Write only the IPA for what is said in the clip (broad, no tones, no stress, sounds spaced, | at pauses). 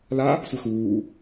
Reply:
l a | sʷ ɘ x uː